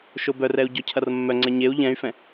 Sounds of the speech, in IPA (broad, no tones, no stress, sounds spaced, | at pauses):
ʃ o b œ r ɛ u̯ ɟ ɔ cʰ ɐ r mː œ ŋ͡ǀ ɛ ɲ e u̯ ʎ ɛ̃ y̯ f ɛ̃